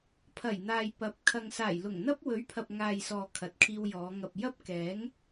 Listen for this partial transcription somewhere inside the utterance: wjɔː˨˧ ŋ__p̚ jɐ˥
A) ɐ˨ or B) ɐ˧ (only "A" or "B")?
A